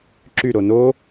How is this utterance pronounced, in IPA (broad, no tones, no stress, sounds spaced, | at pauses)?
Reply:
ǁ y ɾ o n o